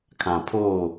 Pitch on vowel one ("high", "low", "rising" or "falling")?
low